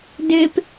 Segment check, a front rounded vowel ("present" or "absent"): absent